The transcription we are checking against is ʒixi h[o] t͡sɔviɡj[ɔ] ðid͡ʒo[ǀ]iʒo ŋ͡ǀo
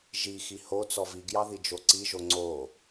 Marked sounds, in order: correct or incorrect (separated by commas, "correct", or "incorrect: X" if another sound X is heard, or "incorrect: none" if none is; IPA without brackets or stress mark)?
correct, incorrect: ɑ, correct